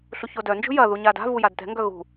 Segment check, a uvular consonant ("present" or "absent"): absent